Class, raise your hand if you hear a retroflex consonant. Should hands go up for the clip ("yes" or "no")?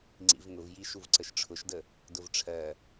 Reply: yes